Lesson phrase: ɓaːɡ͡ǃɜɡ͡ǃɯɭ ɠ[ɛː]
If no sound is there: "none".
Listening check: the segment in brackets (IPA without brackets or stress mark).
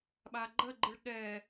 ɛː